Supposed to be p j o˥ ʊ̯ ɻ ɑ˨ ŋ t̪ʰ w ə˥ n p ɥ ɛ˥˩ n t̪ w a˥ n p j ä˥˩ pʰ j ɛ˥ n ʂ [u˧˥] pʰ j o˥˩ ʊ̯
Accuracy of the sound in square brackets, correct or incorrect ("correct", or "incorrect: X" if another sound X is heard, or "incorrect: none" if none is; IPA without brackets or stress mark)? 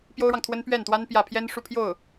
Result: incorrect: u˥˧